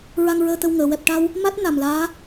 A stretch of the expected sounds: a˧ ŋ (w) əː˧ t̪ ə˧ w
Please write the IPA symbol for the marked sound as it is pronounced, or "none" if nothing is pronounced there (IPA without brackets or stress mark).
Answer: ɹ